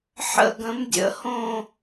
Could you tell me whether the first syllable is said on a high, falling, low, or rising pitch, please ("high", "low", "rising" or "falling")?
falling